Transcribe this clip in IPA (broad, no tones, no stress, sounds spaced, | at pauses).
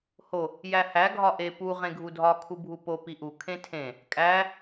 h o | j æ h æ ɡʱ ɒ ʔ e p u ʁ ẽ ɡʱ u dʱ ɒ kʰ u bʱ u p o p i ʔ u kʰ ẽ tʰ ẽ | kʼ æ